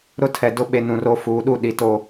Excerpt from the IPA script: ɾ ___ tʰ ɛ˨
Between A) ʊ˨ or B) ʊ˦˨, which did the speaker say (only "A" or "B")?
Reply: B